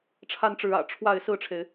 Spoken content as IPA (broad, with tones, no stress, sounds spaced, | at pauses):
ʈ͡ʂʰ a˥ n ʈ͡ʂ ɻ̩˧˥ ä̰˨˩ ʈ͡ʂʰ w a˥˧ ɪ̯ s ɹ̩˥˩ ʈ͡ʂʰ e˩ ɪ̯